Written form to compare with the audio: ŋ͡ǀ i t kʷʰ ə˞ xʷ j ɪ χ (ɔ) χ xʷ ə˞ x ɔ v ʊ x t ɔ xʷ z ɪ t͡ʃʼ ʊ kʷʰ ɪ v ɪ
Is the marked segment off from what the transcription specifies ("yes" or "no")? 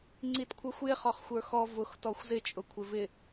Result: no